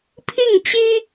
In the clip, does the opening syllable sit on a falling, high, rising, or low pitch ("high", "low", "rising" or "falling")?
falling